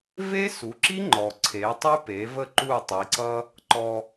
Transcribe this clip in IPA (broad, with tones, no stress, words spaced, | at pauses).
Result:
ve˥su˩˥ǁi˥ ŋ͡ǃɔ˩ǀʰe˩˥ tˤy˥pe˩˥və˥˩ ǃu˥˩tˤi˩˥ǀʌ˥ | ǃɔ˧